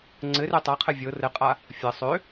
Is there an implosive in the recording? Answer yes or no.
no